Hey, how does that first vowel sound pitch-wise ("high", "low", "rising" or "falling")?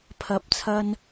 rising